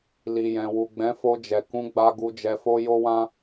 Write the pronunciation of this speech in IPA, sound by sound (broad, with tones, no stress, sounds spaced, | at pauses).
l i˨ j ɛ̃˨ w u˨ ɡ͡b ɛ̃˨˦ f o˧ d͡ʒ ɛ˨ k ũ˨˦ ɡ͡b a˧ ɡ u˧ d͡ʒ ɛ˧ f o˦ j o˦ w ã˦